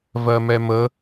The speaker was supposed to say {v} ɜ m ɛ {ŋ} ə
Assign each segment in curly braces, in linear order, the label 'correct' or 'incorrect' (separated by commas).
correct, incorrect